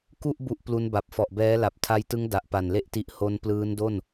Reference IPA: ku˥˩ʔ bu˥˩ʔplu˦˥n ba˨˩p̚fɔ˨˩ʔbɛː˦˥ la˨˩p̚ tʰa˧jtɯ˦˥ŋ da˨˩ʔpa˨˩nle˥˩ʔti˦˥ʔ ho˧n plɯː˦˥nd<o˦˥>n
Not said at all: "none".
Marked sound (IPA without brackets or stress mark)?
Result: o˥˩